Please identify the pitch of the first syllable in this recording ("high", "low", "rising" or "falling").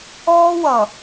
high